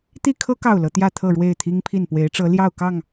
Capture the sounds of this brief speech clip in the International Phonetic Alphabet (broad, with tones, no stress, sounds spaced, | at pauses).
t̪ i˥˨ kʰ ɤ˦ k ɑ˥˨ ʊ̯ l ɤ˨˦ t̪ j ä˥˨ t̪ʰ ɤ˥˨ ɻ w e˥˨ ɪ̯ t̪ʰ i˦ ŋ pʰ i˥˨ n p w e˨˦ ɪ̯ ʈ͡ʂ ɤ˨˦ l j ɑ˥˨ ʊ̯ k ɑ˥˨ ŋ